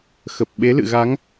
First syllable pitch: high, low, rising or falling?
low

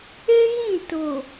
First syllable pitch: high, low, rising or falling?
high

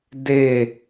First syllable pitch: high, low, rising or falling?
falling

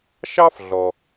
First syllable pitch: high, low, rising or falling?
high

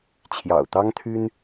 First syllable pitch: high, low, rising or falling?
low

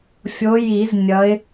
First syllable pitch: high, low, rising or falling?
rising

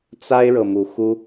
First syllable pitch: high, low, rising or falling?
high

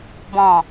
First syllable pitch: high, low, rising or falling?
low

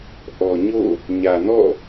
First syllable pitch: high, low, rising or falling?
low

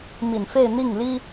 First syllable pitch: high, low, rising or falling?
low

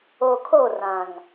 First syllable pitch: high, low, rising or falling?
low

